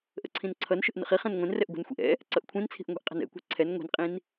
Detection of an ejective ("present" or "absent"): present